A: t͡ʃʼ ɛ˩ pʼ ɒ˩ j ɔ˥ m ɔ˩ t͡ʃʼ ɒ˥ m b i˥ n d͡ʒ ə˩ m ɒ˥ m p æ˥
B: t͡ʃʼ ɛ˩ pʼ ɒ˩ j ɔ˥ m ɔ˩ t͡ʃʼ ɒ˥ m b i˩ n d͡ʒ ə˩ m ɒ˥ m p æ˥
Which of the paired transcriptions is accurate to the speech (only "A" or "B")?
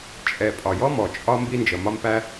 A